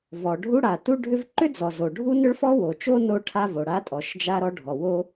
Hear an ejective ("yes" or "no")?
yes